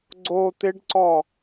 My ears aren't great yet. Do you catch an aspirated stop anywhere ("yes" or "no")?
no